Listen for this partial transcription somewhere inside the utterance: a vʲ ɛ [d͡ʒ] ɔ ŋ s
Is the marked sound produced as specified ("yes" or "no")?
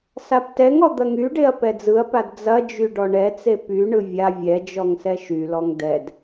yes